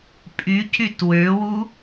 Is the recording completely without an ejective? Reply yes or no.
no